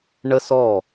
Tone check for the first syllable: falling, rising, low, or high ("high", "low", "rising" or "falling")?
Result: high